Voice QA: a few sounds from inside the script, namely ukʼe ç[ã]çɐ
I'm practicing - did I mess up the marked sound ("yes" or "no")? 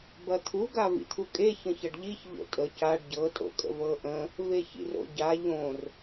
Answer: yes